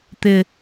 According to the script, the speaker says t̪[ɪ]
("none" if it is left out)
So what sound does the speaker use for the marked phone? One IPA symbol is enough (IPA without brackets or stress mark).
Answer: ɪ